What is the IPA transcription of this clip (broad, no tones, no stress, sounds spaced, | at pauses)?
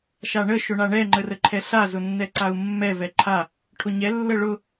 ʃ a ɳ ə ʃ ʊ ɳ a ɳ ɛ ŋ͡ǃ ə r ə ǃʰ ɛ ɬ a z ʊ nː ɛ ǀ a u̯ mː ɛ v ɛ ǃʰ a | ʈʰ ʊ ɲ ɛ lː ə ɭ ʊ